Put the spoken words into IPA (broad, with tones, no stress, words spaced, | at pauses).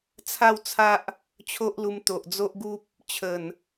t͡sʰa˥˧wt͡sʰa˦ʔ | t͡ɕʰo˦ʔlu˧mt̪o˨ʔ d͡zo˦ʔɡu˦p̚ | t͡ɕʰə˨˩n